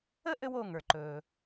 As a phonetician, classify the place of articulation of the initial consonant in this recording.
glottal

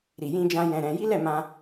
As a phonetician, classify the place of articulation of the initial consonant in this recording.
alveolar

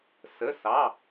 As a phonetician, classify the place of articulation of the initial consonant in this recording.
alveolar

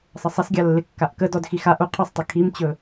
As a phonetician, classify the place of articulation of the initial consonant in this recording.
alveolar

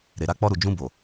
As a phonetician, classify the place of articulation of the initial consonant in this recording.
alveolar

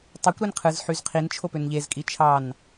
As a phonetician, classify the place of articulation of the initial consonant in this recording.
alveolar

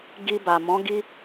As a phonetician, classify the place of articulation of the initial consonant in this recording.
velar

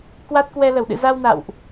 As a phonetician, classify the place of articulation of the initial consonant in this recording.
velar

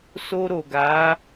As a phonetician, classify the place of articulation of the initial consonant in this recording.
alveolar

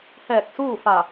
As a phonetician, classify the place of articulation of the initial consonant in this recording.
glottal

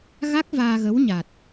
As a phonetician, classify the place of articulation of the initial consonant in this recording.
velar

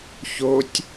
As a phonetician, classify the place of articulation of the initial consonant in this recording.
palatal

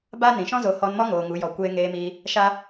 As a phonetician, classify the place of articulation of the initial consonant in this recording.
labial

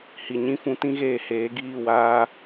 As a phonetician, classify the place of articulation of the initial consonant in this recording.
glottal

